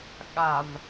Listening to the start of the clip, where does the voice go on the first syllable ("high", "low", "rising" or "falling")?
low